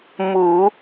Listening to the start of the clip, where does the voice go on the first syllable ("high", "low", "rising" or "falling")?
low